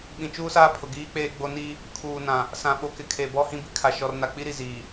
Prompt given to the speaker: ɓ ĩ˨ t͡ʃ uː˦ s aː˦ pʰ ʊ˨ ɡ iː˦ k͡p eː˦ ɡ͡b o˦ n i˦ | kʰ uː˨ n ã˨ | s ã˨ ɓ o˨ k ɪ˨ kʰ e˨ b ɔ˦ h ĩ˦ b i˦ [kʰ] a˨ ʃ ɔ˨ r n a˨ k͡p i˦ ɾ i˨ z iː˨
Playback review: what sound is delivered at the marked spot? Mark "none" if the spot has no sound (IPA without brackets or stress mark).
kʰ